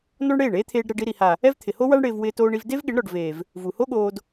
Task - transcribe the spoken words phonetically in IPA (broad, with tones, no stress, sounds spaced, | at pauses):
n ɔ˦ ɳ ɽ eː˦˨ ɳ eː˦ t̪ʰ eː˧ ɖ ɾ ɛ˧ ɖ i˧ ɾ i˨ h a˨ | ɛ˦ v t̪ʰ ɪ˨ h o˦ w a˦ ɳ ɽ ɪː˧ v w ɪː˧ t oː˧ ɳ i˧ v d e˦ v ɠ ɪ˨˦ ɳ ɾ ɔ˨ ɖ v eː˨ v | v u˨ h o˦ ɠ oː˧ d